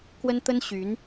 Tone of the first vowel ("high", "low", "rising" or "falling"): high